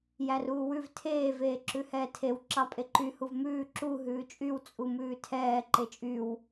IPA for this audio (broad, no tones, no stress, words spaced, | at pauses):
jæruːwʉv tʰeː veːǁʉhɛːtʰew ǁɑpʼeǃy huvmʉː ǁu ɦʉːt͡ʃʼyw t͡sʼumʉːtʰɛː ǃet͡ʃʼyw